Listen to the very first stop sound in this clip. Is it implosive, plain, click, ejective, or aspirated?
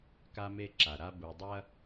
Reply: plain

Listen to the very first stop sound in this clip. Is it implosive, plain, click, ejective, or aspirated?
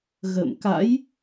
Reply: plain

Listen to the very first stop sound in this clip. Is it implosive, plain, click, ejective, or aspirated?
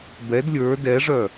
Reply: plain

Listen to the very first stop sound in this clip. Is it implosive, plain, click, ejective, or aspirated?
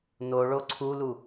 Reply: click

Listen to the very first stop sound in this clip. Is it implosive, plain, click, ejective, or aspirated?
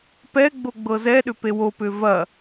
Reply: plain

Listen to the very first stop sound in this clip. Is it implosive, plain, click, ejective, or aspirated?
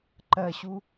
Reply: click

